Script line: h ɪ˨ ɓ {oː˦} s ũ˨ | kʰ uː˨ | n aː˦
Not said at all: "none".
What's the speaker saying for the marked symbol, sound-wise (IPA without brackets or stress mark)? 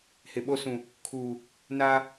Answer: o˦